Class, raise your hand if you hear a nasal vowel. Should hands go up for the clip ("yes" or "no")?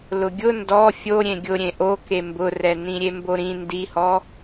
yes